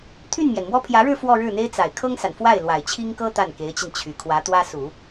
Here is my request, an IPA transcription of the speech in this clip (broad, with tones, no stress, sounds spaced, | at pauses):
t̪ʰ y˥˩ n m j ɛ˩ n m w ɔ˥ pʰ j ä˧˥ ɻ ɻ̩˥˧ f w ɔ˥˧ ɻ ɻ̩˥˩ n̪ e˥ ɪ̯ t͡s a˨˩ ɪ̯ kʰ ɤ˥ ŋ s a˨˩ n f w a˥˩ ɪ̯ l w a˨˩ ɪ̯ t͡ɕʰ i˥ ŋ k ɤ˥ t̪ a˥˩ n k e˧˥ ɪ̯ t͡ɕ i˧ n t͡ɕʰ y˨˩ kʰ w ä˧˥ t̪ w ä˥ s u˨˩˦